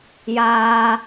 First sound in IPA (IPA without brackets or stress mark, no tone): j